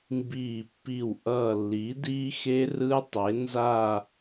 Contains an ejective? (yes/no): no